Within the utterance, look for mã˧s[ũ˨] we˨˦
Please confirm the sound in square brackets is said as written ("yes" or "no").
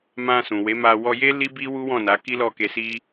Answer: yes